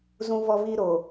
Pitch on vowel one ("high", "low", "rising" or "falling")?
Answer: high